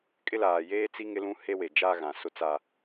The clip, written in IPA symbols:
kʼ ɪ˦ l aː˨ j eː˦ t͡s i˦ ŋ ɪ˦ l ũ˦ h e˦ w e˨ d͡ʒ aː˦ ɣ ã˨ s ʊ˦ t͡s a˦

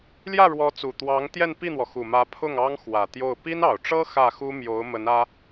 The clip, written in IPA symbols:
l j ä˥˩ ɻ w ɔ˧˥ t͡s u˨˩ t̪ w ɑ˧˥ ŋ t̪ j ɛ˥˧ n p i˥˩ n̪ w ɔ˩ x u˨˩ m ä˧˥ pʰ ʊ˥˩ ŋ ɑ˥ ŋ x w ä˨˩ t̪ j o˥˩ ʊ̯ p i˥ n ɑ˨˩ ʊ̯ ʈ͡ʂ ɤ˥ x ä˥˩ x u˥ m j o˧˥ ʊ̯ m ə˧˥ n ä˥

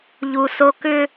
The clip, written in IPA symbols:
ʎ u˨ s o˦ k ʏ˦

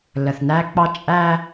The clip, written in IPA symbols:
l ə˨ θ n æ˦ k͡p ɑ˦ t͡ʃʼ æ˦

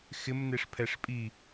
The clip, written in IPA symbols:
x ɪ m n e ʂ pʰ ɛ ʂ pʼ i

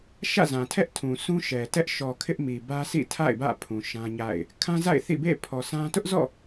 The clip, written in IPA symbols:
ʃ ä̰˦˨ z ã˨ tʰ ɛ˦ ʔ tʰ ũ˨ s ũ˦ ʃ ɛ˨ t ɛ˦ ʔ ʃ ɔ˨ kʰ ɪ˦ ʔ m i˨ b ä˦ s ḭ˦˨ tʰ a̰˦˨ ɪ̯ b ä̰˦˨ pʰ ũ˨ ʃ ã˦ ɲ a̰˦˨ ɪ̯ | kʰ ã˦ z a̰˦˨ ɪ̯ θ ḭ˦˨ b ḛ˦˨ pʰ ɔ˨ s ã˦ t ʊ˦ ʔ z ɔ̰˦˨

